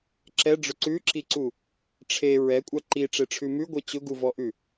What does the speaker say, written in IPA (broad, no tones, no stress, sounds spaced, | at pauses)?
ǁ ɛ ɖ͡ʐ ʊ ǀ ʉ ǁ i ǀ u | ʈ͡ʂʰ e ɹ ɛ kʷʼ a ǃ i ʈ͡ʂ e ʈ͡ʂʰ ʉ m ʉ ɡʷ ɛ t͡ɕ ʊ ɡ u v ɔ ʔ ʉ